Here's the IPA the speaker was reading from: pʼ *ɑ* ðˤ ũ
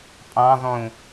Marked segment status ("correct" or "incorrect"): incorrect